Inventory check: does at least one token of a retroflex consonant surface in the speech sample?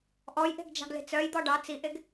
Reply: yes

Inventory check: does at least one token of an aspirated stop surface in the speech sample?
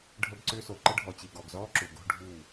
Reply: no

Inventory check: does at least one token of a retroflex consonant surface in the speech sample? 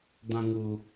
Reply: no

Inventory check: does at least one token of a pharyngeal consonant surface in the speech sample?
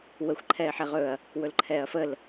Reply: yes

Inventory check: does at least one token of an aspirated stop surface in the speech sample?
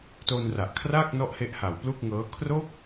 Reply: yes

